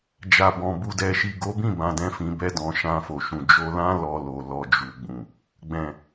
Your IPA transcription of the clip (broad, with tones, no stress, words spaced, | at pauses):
d͡ʒa˨bɔ̃˨ bu˨dɛ˨ʃi˨ ɡo˨˦bĩ˦˨ bã˨dɛ̃˧ fĩ˧bɛ˦dɔ̃˧ ʃã˧fo˨ʃũ˨ d͡ʒo˧lã˦ lɔ˧lo˨ lɔ˧d͡ʒu˨ɡ͡bũ˨ | ɡ͡bɛ̃˨